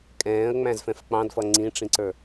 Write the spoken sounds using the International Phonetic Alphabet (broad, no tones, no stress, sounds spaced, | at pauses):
kʼ ɛ̃ː ə̯ ŋ͡m æ̃ z f ɛ̃ f k͡p ɑ̃ d f ʌ ŋ͡ǀ ĩ ʈ͡ʂ ĩ ǀ ə˞